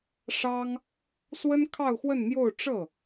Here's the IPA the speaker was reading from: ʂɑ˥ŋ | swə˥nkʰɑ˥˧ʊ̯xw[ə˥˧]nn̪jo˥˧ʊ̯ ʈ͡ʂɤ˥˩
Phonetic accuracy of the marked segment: correct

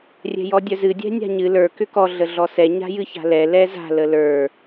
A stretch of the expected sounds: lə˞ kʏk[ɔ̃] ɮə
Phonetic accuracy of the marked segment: incorrect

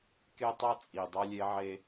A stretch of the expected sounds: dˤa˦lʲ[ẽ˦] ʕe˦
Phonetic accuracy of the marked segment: incorrect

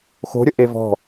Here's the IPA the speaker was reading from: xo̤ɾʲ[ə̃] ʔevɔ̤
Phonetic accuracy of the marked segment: incorrect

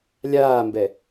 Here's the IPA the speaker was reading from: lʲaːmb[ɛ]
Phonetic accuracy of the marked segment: correct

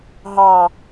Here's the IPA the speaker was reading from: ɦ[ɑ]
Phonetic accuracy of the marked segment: correct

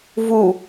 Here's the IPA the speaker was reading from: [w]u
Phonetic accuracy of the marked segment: incorrect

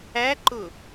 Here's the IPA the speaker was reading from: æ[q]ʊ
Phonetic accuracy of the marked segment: incorrect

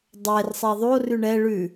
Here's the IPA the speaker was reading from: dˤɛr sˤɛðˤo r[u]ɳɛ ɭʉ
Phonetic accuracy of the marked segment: incorrect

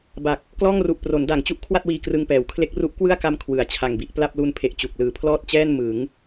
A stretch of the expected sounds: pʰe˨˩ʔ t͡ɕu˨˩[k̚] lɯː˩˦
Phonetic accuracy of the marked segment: correct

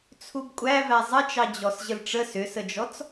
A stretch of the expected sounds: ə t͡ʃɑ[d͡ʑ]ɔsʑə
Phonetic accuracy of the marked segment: correct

